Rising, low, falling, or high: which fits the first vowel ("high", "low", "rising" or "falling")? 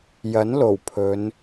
rising